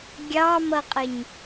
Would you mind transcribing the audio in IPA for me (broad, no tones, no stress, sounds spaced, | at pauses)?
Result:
ɡʲ ɑ m ʌ qʼ ɪ ɲ